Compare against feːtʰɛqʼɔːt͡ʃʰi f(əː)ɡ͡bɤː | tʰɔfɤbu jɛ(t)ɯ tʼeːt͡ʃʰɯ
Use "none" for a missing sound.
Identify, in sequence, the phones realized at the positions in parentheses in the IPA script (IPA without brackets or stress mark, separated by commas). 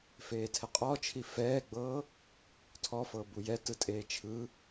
ɛː, t